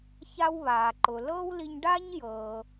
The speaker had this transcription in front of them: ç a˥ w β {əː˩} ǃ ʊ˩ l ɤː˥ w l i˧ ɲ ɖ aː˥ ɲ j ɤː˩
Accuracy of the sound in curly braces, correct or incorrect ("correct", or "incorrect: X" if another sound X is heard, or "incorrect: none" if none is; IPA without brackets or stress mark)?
incorrect: aː˩